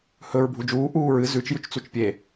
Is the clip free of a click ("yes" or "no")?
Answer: yes